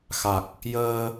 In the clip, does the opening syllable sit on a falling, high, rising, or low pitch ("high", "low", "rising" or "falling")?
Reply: low